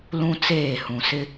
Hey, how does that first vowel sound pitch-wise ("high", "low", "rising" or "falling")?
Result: high